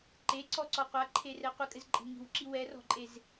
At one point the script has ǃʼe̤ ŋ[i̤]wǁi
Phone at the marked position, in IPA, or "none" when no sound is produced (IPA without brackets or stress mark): i̤